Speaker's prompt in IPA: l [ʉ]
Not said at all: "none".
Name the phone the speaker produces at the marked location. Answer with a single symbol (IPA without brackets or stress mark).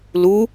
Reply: u